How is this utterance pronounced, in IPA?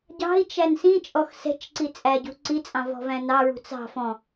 ɟɑ̤i̯t͡ʃæn sĩt͡ʃʼɔx sɛ̤t͡ʃǀi t͡sʼæɟṳ ǀit͡sʼɑ̃ vɔ̤væ̃nɑɹṳ t͡sɑ̤ fɔ̃

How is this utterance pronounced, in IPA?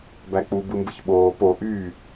bæk͡pu bɯmbɯçɓoː po ʔyː

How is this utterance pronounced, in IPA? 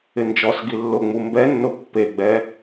ɪnd͡ʒɔsɡi lːʊŋ͡mu mbɛnːʊ pːeɡ͡bɛ

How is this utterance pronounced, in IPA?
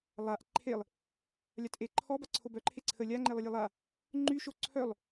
lˠaʔ ǃʰelˠ | lʲatʔeǃʰɔ baǀʰobœǃʰe ǀʰə lʲaŋ͡ǃelˠəlʲe lˠa | ŋ͡ǃyʃo ǀʰœlˠ

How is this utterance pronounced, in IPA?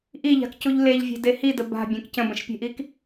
ʔiʎa̤kcuʎ leʎvʲe̤de hidə ba̤bʲẽk cə̃bə̃ʃpʲe̤ʔik

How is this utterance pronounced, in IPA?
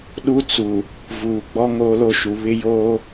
ɗu˦ t͡su˨ | vuː˨ɡ͡bɔ˦ ŋoː˦lo˦ʃu˨ βɪ˦joː˦

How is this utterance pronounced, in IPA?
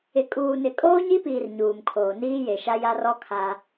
ɪ˨ kʼuː˨nɪ˨ kʼoː˦ɲi˦piː˨r ɲuː˨mkʰoː˨ niː˦je˨ʃa˦ ja˦rɔ˦ kʰa˦

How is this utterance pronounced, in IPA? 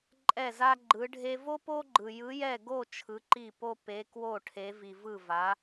ǃʼɛ˥˨za˥ɡ͡ǃɯ˧˥ɖʱe˥ vo˥po˥ɡ͡ǃɯ˧ jɯ˧˥jɛ˥˨ ɡo˥˨ t͡ʃʰɯ˧˥ǃi˥˨po˥ pe˧˥kwo˥˨ʈʰe˧˥vi˧ vɯ˥˨va˧˥

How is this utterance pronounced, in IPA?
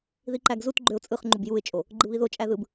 ðiǃæɡzutɡ͡ǃøʊ̯ t͡sʼɯχŋ͡ǃub juɪ̯t͡ʃʼo | ɡ͡ǃɯβiðot͡ʃʼæ ðɯb

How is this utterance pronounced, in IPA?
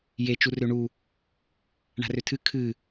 je t͡ʃurøɳu | ɳa̤røtʰɨ kʰɨ

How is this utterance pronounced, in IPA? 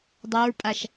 dˤaɹpʼaʃ

